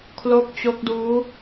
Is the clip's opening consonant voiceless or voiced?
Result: voiceless